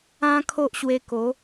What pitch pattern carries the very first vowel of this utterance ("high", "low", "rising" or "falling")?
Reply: high